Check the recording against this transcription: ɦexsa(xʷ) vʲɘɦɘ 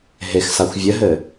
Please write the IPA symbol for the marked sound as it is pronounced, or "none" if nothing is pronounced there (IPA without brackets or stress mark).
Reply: xʷ